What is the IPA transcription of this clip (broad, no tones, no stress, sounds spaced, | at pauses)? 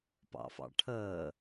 p ɑ̰ f ɑ̰ ʈʰ əː